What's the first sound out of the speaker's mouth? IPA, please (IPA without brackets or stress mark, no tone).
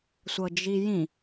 sʷ